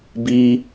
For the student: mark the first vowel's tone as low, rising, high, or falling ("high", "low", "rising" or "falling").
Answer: high